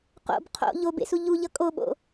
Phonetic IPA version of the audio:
q o̰ b qʰ o̰ ʎ o b ḛ s u ʎ u ʎ ʌ kʼ o ɓ o̰

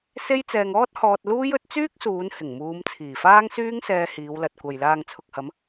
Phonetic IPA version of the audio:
s e˥ j t͡s ɛː˧ ŋ ɔː˥ t̚ h ɔː˧ t̚ l uː˥ j ɵ˨˥ t̚ t͡s yː˥ k̚ s uː˨˧ n h ɪ˨˩ ŋ m uː˨˧ m t͡sʰ iː˨˩ f aː˥ ŋ s yː˥ ŋ s ɛː˧ h iː˨˧ w l ɐ˨ t̚ kʷ ɐ˨ j l aː˨ ŋ t͡sʰ ʊ˨ k̚ h ɐ˨˧ m

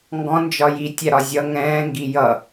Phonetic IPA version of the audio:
ŋ ɡ ɔ̃ n d͡ʒ ɒ j i tʲ æ ɾ ɒ zʲ ʌ ŋ ɛ̃ː ŋ ɡ i j ʌ

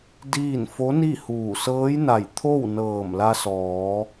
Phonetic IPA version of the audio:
d iː˥˨ n f o˧˥ n i˥˨ h uː˧˩ s ɤː˧˥ j n a˧˩ j t̪ʰ o˥˨ w n ɤː˧˩ m l a˧ s ɔː˩˧

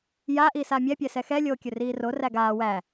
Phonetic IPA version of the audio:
j a ʔ iː s a mʲ ɛ pʲ ɛ s ɛ x ɛ lʲ oː kʲ ɵ r iː r o r æ ɡ aː w æ

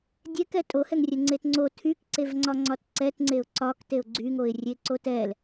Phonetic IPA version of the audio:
dʲ ɛ k ɛ tʼ o h ɛ ŋ rʲ ɛ ŋ͡ǀ e t ŋ͡ǀ o tʰ y k ǀ e v ŋ͡ǀ ɒ ŋ͡ǀ ɒ t ǀ ɛ t ŋ͡ǀ e ʊ̯ ǀ ɒ k t e ʊ̯ ɡ͡ǀ y ŋ o ɪ̯ rʲ e ǀ o t ɛ l

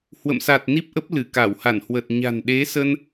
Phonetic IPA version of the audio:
h w ə̰˧˨ m s a˨˩ t̚ n i˦˥ p̚ ʔ ə˦˥ p̚ l ɨ˧˩ k a˧˩ w h a˧˩ n h w ə˨˩ t̚ ɲ a̤˨˩ n ɗ e˨˦ s ə˧ n

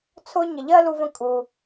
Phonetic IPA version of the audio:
t͡sʰ ʊ˦ ɲ ə˨ ʎ ɜ˥ l u˦ v ə̃˦ kʼ u˨

